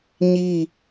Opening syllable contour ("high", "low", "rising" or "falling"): falling